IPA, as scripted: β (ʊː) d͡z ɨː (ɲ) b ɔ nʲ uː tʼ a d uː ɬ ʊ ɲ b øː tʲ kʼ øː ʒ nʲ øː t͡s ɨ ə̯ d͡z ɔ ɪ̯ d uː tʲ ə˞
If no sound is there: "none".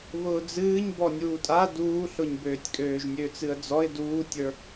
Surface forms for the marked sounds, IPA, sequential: ʊː, ɲ

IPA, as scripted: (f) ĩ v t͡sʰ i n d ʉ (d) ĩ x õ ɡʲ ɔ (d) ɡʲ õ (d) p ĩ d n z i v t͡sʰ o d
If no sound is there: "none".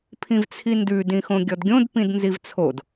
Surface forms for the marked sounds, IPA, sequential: pʰ, d, d, d

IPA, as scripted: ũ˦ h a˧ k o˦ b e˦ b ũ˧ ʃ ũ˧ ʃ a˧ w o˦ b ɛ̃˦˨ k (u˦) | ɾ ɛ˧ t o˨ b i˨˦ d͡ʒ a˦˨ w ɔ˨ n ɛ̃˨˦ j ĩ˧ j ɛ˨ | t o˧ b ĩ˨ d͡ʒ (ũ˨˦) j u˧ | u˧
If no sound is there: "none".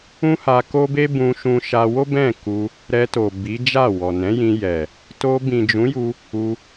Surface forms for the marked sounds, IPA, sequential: u˧, ũ˨˦

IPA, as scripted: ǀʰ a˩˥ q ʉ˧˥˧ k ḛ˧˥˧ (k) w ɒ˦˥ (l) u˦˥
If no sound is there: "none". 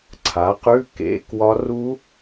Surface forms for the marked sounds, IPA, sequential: k, r

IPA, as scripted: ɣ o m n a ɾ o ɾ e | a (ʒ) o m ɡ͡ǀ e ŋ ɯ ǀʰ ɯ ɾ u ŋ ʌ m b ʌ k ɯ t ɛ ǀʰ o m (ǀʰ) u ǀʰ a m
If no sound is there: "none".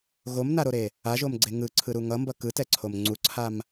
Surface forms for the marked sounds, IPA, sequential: ʒ, ŋ͡ǀ

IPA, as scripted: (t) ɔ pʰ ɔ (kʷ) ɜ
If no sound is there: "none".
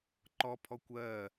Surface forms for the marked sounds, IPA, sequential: ǃ, kʷ

